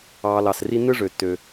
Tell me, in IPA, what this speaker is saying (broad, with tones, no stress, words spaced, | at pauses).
ɑː˨lɑ˩s ri˦n̪ɯ˥ ʐø˩tːø˩